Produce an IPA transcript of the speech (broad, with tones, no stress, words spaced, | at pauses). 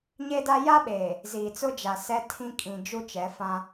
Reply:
ɲe˦da˦ ja˦ɓeː˨ | ziː˨t͡sʊ˦d͡ʒa˨ sɛ˦tʰĩ˦ kʼĩ˨ d͡ʒu˦t͡ʃɛ˨˦fã˦